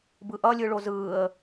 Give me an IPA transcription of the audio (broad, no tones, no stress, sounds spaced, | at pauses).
b ɯ ʔ ʌ lʲ ɯ ɭ o z ɯː ə̯